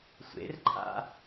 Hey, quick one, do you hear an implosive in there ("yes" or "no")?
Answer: no